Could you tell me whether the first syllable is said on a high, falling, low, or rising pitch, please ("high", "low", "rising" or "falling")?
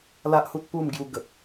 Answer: high